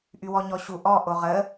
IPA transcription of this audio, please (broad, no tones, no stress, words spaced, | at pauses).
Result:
ʔywɔɲɔɕu ʔɔ ʔoʁə